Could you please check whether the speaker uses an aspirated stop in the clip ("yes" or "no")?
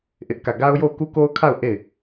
yes